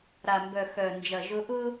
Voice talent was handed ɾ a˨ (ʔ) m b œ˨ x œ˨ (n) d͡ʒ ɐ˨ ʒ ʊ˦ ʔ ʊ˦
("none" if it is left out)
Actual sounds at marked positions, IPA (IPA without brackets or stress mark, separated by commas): none, n